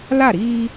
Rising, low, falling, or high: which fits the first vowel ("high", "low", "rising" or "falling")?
falling